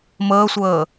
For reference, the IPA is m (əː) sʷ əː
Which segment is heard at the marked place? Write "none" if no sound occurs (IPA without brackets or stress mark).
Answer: əː